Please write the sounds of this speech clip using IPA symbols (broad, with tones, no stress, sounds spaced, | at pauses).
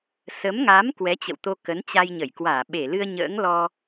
s ə˨˦ m ŋ a˨˦ m k w ɛ˨˦ t͡ɕ ə̰˧˨ w t̪ o˧ k ə˨˦ n t͡ɕ a˧ j ɲ ə˧˩ j k w aː˧˩ ɓ e˧˩ l ɨ˧ ə̯ ɲ ə̰ː˧˥ ŋ l ɔ˧